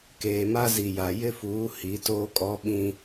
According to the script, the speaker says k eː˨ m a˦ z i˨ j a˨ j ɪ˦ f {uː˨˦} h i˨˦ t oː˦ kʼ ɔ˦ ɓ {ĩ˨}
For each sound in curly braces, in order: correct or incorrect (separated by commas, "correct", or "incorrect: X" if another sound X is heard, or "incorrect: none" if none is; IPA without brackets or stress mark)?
correct, incorrect: ĩ˦